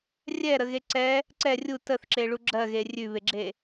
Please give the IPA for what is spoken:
rʲ ɛ ɾ ə ɣ e ǀ ɛ | ǀ ɛ rʲ u t ə θ ǁ e ɭ u ɡ͡ǁ ɜ ɣ e rʲ ʉ β e ɡ͡ǁ e

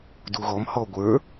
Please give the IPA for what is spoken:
d u ɣ ɔ m h ɔ ɡʷ ə˞

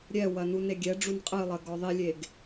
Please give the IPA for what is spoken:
ɾʲ ɛ w ɐ n u n e ɡʲ ɛ ɖ͡ʐ u n qʼ ɨ lˠ ɐ ɡ ɔ ðˤ i lʲ e ɡ

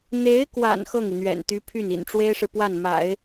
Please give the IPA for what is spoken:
n̪ e˧˥ ɪ̯ k w a̰˨˩ n x ɤ˥˩ ŋ i˩ n̪ ɥ ɛ̰˨˩ n t̪ y˧˥ pʰ y˥˩ n ḭ˨˩ n ʈ͡ʂ w e˥ ɪ̯ ʂ ɻ̩˨ p w a˥˩ n m a̰˨˩˦ ɪ̯

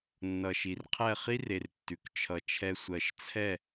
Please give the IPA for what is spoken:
nː ʌ˨ ʃ i˨ r qʰ ɛ˦˨ χ i˦ r e˨ r tː ʉ˨ k t͡ʃʰ ʌ˨ t͡ʃʰ ɛ˧ sʷ ɜ˨ ʃ t͡sʰ ɛ˦˨

